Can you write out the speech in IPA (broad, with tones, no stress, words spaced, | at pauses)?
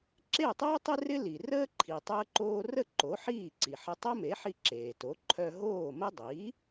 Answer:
ǁe˥˩tˤəː˥tˤɪ˥ rɪ˥li˩rəː˥ ǃʰi˩ tˤəː˧ǃoː˧rə˥˩ ǃo˩˥ħiː˥˩ǀi˩ħə˧ tˤo˥me˩˥ħi˧ ǁeː˩to˩˥ ǃʰœ˧ ɦoː˥˩mə˥ dˤiː˩˥